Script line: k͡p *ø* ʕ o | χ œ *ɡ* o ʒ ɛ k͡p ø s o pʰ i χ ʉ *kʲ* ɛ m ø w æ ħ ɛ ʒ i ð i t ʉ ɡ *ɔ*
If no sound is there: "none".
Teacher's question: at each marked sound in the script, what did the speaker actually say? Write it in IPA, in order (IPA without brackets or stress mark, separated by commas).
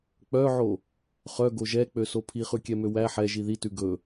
œ, ɡ, kʲ, ɵ